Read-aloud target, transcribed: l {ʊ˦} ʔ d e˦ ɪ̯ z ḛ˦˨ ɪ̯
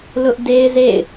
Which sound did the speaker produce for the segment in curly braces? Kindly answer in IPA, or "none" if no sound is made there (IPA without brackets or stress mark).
ʊ˦